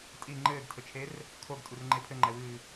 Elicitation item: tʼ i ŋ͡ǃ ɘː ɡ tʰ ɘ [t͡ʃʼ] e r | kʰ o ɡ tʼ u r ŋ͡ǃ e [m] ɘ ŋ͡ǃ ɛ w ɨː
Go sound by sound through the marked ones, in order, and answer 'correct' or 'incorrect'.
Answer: incorrect: t͡ʃʰ, incorrect: pʰ

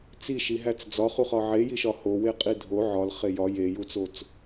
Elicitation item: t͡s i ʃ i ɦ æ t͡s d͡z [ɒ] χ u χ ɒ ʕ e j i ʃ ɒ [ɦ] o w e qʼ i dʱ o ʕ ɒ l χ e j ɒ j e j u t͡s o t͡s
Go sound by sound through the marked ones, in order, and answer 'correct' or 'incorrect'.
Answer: correct, incorrect: h

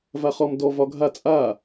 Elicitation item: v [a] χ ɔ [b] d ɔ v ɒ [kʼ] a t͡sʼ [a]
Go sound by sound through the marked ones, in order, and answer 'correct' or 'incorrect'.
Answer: correct, incorrect: m, incorrect: ɡʱ, correct

